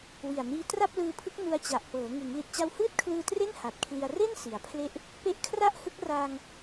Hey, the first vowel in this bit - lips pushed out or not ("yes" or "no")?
no